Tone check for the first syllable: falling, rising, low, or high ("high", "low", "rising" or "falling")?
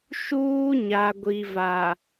high